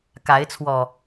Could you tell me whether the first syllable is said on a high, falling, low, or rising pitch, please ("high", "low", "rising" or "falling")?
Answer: rising